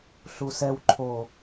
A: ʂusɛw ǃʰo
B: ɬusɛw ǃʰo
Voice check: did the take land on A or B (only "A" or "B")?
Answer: B